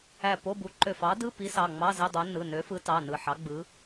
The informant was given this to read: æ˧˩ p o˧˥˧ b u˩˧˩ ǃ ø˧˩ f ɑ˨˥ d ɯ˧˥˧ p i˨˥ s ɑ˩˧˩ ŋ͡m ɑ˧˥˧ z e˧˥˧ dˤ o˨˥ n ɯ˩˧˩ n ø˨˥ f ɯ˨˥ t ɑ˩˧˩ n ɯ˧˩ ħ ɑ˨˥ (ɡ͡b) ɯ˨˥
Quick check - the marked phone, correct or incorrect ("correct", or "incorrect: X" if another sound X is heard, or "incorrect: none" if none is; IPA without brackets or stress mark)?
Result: correct